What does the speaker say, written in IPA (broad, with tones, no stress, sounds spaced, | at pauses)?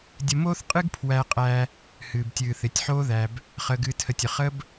dʲ ə˧ m oː˦ θ qʼ ɨ˦ ɡ pʰ w æ˧ qʼ æ˧ | h ɨː˨ b tʲ ɨː˨ θ ɪ˨ tʲ ħ oː˦ ð æ˧ b | χ əː˨ ɡ ɨː˨ tʰ ə˨ tʲ ə˨ χ ə˦ b